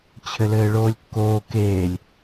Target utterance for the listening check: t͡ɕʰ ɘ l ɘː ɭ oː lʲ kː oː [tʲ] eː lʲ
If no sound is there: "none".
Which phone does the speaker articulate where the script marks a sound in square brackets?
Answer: k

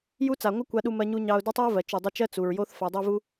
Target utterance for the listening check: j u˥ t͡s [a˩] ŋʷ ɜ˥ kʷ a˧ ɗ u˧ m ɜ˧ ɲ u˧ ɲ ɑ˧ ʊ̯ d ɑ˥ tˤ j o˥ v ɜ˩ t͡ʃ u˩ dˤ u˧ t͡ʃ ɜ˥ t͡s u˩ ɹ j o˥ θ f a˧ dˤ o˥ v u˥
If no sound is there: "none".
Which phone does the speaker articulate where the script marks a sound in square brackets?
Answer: a˩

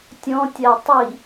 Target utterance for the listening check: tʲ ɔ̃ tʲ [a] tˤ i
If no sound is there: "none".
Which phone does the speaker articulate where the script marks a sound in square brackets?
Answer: a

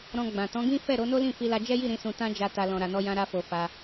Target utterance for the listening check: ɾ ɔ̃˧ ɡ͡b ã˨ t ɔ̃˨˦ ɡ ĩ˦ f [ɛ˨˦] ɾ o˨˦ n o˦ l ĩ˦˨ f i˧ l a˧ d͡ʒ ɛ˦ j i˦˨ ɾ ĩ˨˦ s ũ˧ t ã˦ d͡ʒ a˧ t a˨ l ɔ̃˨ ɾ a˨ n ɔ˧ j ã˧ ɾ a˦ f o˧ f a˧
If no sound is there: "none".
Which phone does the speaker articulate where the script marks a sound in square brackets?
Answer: ɛ˦˨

